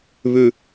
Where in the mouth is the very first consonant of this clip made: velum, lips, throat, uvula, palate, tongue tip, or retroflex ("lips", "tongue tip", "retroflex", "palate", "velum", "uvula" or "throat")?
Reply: lips